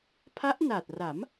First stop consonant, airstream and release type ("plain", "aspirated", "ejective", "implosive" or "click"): aspirated